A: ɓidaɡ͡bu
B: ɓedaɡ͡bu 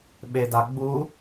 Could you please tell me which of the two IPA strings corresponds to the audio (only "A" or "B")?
B